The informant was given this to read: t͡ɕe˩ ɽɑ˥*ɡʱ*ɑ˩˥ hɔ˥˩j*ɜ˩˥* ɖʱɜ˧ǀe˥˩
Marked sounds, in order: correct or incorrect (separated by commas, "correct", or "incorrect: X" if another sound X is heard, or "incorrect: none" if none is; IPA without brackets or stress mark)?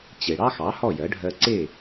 incorrect: x, correct